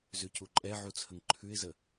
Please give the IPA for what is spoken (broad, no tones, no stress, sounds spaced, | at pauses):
z ʉ c u ǃʼ ɛ ʕ u t͡sʰ ə ŋ ǃʰ ʉ ɪ̯ z ə